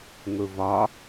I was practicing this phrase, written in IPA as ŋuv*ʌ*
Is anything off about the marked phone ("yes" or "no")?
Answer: yes